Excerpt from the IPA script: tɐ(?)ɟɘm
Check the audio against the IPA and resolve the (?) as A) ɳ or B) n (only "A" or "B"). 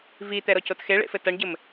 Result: A